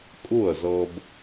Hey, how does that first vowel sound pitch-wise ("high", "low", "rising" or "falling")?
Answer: falling